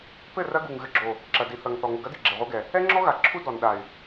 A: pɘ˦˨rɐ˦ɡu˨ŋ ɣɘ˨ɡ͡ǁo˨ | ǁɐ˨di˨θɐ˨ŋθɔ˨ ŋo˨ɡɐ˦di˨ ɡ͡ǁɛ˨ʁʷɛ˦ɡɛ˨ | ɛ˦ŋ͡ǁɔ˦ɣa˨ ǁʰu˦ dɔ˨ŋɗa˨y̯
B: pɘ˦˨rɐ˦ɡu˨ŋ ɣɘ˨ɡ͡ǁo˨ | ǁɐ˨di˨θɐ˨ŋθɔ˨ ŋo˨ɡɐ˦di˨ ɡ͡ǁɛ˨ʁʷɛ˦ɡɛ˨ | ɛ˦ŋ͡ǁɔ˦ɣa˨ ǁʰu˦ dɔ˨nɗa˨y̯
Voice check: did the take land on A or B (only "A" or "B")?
B